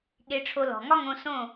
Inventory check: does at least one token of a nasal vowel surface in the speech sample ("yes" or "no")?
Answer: yes